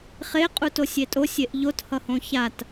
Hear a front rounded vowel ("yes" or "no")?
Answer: no